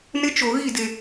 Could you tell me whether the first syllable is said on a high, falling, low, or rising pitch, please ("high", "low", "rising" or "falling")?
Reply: high